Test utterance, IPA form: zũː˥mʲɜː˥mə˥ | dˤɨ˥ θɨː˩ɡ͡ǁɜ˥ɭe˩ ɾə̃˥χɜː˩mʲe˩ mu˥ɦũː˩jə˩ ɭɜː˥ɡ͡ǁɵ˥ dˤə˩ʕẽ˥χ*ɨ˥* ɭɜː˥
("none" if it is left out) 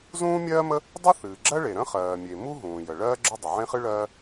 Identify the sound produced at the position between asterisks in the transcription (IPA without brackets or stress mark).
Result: ɨ˥